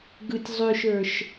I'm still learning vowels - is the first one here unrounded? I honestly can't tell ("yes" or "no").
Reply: yes